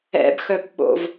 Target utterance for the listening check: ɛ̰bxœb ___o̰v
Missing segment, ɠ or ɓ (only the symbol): ɓ